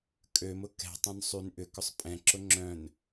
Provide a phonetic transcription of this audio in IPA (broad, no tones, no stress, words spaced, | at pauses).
kʼømʊ kɛ̤tˤœ̃n sˤyn ʔʏkʏsˤ pʼɛ̃ǁʊ ŋ͡ǁœ̃n